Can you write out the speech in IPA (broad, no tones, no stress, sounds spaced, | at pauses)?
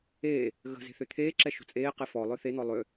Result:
eː | ɣ ə̤ z e̤ θ ø t̪ʰ eː ǁ ɛ ʃ o̤ t͡sʼ eː q e f ɔ lˠ œ θ e n̪ ɔ lˠ ø